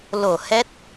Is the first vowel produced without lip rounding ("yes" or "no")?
no